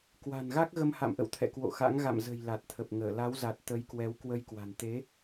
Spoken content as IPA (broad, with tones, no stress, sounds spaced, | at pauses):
k w a̤˨˩ n ɣ a˦˥ k̚ ɣ ə˧ m h a̰˧˨ m ʔ ə̰˧˨ w t̪ʰ ɛ̰˧˨ k w o̰˧˨ x a̰˧˥ ŋ ɣ a̰˧˨ m z ə̤˨˩ j l a˨˩ t̚ t̪ʰ ə˨˩ p̚ ŋ əː˧˩ l a˨˦ w z a˨˩ t̚ t̪ ə˨˦ j k w ɛ˨˦ w k w ə˧ j k w a̤˨˩ n t̪ e˨˦